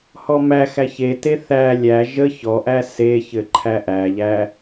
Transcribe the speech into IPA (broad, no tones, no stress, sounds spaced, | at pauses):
h ɔ m æ x æ ç e t e θ æ lʲ æ ʒ ə ç ɔ ʔ æ s e ç ɘ ǃʰ æ ʔ æ ʎ æ